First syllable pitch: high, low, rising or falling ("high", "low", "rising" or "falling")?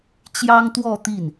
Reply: high